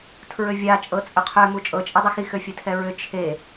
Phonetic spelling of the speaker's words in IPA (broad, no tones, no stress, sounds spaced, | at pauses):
tʰ ɹ ø vʲ a t͡ʃʼ ɤ t͡sʼ ʏ qʰ ø m u t͡ʃʼ ɤ t͡ʃʼ e dˤ ɨ x i x ø fʲ e tʰ ɛ ɹ ʏ t͡ʃʰ e